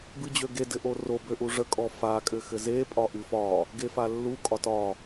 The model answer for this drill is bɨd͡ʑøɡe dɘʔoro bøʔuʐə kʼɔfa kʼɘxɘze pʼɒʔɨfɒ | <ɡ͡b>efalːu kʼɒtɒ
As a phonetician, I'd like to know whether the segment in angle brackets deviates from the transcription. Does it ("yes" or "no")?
yes